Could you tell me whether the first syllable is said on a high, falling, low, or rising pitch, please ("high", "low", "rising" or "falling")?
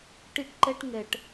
high